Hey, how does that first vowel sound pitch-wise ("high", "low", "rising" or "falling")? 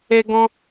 high